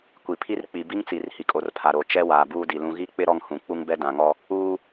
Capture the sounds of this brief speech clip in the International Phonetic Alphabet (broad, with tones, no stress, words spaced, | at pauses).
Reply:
kʷi˨pʰi˦r k͡pi˨bi˦ŋt͡si˨r hi˨kʼo˨rpʰa˨ɾoː˨ t͡ʃɛ˦ waː˨buː˦di˨lũ˦ ɣi˦k͡pɪ˦ ɾɔ˦ŋhũ˨ k͡pu˦ŋbɛ˦dã˨ŋɔ˦ | uː˦